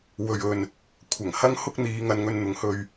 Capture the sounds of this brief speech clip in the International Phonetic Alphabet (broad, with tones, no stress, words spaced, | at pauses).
wɵ˨ɥɵ˨n | kʷʰɐ˨˩ŋhɐ˥ŋhʊ˥k̚n̪iː˨˧ ŋɐ˨˧nŋɵ˧nn̪ʊ˨˧ŋhɵ˧ɥ